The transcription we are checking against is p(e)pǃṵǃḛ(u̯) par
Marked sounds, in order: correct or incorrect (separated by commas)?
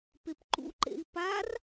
correct, incorrect